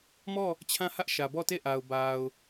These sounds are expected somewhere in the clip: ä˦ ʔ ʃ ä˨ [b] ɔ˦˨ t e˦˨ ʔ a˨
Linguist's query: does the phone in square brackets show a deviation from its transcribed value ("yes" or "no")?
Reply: no